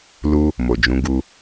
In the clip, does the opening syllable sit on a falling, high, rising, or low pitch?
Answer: high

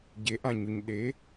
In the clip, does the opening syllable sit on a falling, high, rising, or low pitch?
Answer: rising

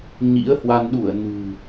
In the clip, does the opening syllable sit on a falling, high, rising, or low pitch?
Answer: rising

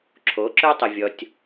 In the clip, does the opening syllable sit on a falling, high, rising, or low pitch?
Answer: rising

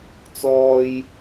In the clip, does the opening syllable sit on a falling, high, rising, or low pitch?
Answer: low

